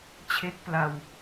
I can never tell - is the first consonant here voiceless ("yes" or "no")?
yes